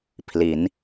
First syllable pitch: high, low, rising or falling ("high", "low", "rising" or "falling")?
rising